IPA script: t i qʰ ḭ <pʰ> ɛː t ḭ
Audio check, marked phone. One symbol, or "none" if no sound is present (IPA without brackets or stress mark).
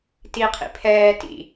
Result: pʰ